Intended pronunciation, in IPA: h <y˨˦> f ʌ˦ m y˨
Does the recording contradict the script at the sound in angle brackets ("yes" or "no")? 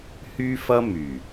yes